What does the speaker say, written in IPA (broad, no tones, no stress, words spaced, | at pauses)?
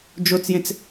d͡ʒot͡sjẽt͡s